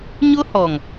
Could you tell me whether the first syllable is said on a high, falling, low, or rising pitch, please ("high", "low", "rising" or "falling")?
high